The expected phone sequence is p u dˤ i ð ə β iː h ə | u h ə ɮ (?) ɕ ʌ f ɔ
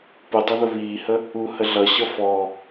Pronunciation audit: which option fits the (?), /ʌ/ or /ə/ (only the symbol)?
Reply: ʌ